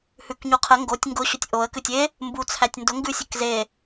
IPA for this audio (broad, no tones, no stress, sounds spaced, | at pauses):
h ʉ k ɲ u qʰ ə ŋ ɡ o tʲ ŋ ɡ ʊ ɕ ʊ tʲ ʔ o ə̯ k ʉ tʲ e | m b u t͡sʰ æ tʲ n d ʊ ŋ ɡ ʉ sʲ ɘ k z e